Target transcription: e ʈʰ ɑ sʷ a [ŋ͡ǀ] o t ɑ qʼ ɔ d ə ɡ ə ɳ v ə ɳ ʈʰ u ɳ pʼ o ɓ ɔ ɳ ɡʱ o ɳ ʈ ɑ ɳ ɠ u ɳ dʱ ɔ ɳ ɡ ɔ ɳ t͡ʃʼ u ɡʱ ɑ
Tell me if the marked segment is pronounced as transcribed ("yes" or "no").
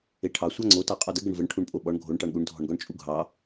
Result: yes